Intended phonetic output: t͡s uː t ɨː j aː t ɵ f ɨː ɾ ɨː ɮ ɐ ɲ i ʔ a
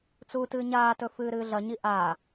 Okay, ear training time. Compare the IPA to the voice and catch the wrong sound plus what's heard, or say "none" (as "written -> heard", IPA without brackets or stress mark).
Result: j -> ɲ